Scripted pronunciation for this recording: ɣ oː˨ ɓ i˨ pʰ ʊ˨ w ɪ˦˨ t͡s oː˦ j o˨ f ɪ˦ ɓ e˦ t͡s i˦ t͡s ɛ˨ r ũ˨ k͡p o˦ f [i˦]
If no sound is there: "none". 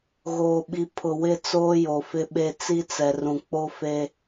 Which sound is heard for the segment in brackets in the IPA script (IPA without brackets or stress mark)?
e˦